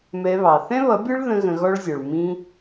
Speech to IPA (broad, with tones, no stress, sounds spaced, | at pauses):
m ɛ˧ β ɑ˨ θ ɛ̃˦ β ʌ˨˦ bʲ ə˞˦ ɭ ð ə̃˦ ɣ ə̃˧ ɣ ɔ˦ ɭ zʲ ɔ˨ ɭ m ĩ˧